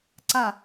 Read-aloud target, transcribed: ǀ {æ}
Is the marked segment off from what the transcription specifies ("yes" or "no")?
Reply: yes